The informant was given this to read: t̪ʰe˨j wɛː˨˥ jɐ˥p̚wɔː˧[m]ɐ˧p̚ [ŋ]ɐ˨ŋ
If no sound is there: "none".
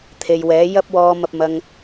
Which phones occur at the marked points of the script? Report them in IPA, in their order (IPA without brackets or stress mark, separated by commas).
m, m